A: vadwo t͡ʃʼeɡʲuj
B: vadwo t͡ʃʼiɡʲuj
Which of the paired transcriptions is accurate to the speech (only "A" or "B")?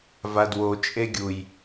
A